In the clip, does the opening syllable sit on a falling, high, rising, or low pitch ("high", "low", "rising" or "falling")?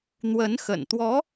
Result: rising